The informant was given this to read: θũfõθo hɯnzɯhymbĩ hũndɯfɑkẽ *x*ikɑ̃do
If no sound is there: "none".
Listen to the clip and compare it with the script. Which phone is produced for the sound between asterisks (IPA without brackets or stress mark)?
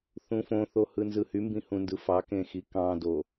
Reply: x